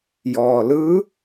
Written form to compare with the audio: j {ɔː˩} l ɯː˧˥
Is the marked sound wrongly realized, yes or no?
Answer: no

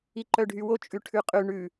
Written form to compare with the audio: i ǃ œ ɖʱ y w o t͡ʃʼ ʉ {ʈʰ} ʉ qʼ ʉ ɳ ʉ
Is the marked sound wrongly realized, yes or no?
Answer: no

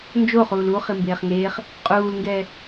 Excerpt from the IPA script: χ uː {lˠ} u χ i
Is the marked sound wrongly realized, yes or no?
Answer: yes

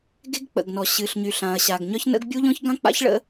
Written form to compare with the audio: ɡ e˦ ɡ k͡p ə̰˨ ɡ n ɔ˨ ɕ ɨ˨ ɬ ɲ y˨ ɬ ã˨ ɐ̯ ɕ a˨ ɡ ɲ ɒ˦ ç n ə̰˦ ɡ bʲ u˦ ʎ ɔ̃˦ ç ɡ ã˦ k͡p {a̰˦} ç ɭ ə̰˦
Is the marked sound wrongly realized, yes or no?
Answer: no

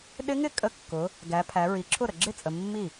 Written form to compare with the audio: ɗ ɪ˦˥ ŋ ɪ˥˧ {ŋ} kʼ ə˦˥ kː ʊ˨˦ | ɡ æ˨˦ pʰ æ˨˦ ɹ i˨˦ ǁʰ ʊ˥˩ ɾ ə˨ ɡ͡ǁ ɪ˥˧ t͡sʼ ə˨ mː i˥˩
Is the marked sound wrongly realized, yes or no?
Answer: yes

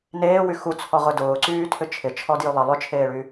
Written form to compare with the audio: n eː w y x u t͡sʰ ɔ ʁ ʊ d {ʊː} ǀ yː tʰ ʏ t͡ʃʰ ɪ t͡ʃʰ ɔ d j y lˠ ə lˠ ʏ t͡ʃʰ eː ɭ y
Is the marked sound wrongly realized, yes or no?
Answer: no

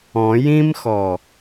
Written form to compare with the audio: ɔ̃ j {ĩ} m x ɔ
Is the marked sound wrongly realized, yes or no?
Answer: no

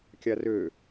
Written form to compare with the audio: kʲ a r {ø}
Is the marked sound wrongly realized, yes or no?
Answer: no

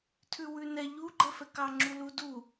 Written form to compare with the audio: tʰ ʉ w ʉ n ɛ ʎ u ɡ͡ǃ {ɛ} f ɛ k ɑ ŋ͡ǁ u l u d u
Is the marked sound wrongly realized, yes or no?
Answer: no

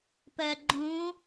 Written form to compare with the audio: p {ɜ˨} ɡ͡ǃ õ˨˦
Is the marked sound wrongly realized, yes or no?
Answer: no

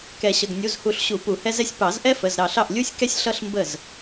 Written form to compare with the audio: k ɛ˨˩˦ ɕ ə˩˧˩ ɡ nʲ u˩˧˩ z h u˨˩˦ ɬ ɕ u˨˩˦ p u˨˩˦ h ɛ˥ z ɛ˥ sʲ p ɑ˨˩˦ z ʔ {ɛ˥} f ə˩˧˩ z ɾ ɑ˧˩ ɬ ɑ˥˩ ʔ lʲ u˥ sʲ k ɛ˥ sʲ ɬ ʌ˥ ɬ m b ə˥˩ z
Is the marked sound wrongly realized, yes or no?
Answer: no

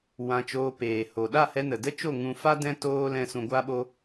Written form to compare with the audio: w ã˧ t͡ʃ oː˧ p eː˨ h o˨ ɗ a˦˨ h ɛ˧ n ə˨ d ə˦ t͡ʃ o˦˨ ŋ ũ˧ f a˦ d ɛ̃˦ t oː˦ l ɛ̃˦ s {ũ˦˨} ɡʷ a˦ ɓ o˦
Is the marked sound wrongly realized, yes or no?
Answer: yes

